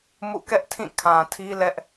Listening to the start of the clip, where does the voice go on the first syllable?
falling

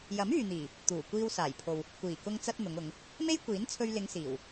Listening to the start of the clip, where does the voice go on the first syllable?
rising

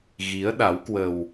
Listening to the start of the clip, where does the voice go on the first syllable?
rising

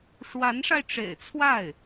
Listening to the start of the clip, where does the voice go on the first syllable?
rising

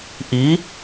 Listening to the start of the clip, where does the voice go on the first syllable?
rising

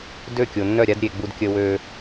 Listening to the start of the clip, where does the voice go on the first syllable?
falling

